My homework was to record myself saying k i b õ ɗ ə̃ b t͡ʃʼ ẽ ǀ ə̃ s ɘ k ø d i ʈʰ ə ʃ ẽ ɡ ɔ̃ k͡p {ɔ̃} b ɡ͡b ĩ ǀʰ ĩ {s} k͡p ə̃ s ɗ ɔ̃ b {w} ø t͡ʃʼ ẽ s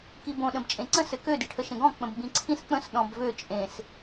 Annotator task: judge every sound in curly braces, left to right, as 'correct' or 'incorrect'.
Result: incorrect: ə̃, correct, incorrect: v

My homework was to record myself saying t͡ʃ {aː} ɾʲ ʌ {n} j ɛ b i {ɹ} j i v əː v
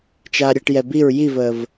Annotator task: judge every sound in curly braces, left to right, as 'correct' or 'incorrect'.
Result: correct, incorrect: ʈ, correct

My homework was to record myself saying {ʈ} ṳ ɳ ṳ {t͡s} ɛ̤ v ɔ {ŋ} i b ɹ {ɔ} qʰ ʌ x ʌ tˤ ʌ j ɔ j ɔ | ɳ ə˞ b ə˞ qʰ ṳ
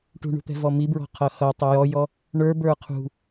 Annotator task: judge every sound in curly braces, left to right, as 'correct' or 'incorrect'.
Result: correct, incorrect: t̪, incorrect: m, incorrect: ɔ̤

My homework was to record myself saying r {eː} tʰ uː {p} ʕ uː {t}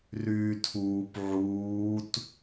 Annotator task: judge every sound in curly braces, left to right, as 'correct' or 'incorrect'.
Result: incorrect: yː, correct, correct

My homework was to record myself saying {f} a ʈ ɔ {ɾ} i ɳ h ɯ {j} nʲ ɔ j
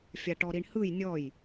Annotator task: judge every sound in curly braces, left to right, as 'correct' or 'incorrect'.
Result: incorrect: fʲ, correct, correct

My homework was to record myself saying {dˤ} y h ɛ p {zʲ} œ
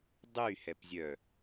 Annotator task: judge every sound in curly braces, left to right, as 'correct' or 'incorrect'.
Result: correct, correct

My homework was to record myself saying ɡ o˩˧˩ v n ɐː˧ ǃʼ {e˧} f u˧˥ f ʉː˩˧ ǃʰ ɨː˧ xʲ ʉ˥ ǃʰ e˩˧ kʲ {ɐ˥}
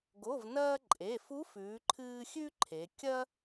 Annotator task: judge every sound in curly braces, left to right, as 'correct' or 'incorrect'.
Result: incorrect: e˩˧˩, correct

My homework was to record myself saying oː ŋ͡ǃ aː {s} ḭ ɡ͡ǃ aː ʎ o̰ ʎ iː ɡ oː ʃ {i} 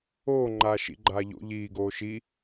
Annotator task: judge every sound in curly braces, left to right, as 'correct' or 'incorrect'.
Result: incorrect: ʃ, correct

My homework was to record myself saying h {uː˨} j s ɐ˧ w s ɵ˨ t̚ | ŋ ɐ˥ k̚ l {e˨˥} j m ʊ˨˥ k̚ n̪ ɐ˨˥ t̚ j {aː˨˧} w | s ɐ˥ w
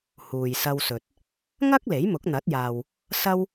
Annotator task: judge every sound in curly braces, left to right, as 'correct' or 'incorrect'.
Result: correct, correct, incorrect: aː˨

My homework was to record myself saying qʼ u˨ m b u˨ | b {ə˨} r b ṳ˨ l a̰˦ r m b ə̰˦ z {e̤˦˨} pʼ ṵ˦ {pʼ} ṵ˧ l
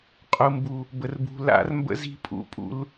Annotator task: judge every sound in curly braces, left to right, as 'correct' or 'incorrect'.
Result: correct, incorrect: i̤˦˨, correct

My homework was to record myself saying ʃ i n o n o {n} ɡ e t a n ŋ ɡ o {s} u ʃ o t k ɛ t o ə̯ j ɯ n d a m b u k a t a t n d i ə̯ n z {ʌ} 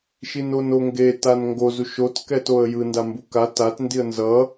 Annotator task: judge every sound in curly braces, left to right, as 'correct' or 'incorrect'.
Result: incorrect: ŋ, incorrect: z, correct

